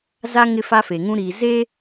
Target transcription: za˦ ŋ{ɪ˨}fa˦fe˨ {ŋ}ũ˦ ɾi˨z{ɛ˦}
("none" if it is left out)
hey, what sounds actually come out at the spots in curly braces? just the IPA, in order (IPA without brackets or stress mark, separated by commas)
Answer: ɪ˦, ŋ, e˦